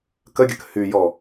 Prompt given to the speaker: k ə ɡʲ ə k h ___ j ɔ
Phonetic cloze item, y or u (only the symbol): y